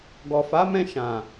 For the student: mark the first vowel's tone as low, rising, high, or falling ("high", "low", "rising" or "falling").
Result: low